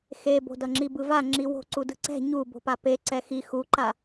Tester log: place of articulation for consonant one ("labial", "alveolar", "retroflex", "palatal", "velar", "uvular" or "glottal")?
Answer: velar